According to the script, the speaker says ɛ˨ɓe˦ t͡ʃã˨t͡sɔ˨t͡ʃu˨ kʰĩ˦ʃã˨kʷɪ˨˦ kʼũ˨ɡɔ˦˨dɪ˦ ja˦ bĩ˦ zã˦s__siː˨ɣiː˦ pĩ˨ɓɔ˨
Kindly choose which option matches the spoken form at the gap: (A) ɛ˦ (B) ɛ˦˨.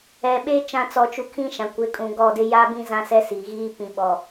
A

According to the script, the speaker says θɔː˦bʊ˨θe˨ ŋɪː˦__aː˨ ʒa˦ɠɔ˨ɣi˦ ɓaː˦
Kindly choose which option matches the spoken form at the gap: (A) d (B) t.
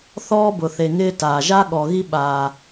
B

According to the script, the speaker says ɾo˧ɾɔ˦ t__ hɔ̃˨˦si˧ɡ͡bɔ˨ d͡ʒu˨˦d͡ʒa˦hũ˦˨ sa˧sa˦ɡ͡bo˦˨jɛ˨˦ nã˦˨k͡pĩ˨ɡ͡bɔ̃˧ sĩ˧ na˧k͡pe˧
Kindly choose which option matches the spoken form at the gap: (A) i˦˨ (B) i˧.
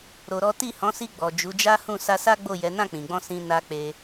A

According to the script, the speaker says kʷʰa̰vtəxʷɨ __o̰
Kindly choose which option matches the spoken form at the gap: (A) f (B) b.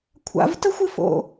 A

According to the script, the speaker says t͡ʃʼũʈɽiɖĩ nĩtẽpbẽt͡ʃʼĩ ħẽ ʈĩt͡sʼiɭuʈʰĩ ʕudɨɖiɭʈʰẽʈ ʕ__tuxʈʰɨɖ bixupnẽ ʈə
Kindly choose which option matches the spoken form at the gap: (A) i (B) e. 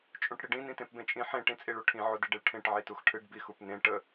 A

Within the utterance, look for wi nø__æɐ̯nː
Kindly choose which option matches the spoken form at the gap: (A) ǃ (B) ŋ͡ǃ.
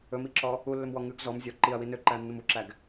A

